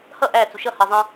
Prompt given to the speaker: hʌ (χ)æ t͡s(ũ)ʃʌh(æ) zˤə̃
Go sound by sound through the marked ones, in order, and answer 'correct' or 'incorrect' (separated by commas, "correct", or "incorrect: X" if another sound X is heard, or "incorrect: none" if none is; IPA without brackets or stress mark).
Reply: incorrect: ʔ, incorrect: u, incorrect: ɜ